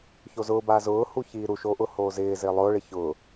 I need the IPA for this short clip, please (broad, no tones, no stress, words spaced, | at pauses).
çozʊːba zʊː huçiːɾuʃo ʔʊhoːzɪːzɪː lˠʊːɭɪ çʊ